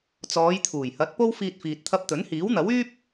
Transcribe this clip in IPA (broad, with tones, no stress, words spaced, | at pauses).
t͡sɔː˨˧jt̪ʰuː˨˩jhɐ˨˥t̚ po˥wfiː˧t̚ fiː˨t̚t̪ʰɐ˧p̚t̪ɵ˨˥n hiː˨˥wn̪ɐ˨˥wyː˥p̚